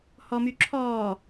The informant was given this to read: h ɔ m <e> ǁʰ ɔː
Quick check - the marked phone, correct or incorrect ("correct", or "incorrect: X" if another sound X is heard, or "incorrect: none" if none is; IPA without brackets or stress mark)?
incorrect: y